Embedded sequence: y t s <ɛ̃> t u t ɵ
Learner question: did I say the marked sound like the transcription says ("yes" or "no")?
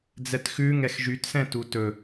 yes